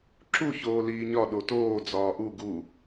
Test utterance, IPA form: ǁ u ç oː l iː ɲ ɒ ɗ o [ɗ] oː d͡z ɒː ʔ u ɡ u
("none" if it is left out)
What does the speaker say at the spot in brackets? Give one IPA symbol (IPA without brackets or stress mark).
t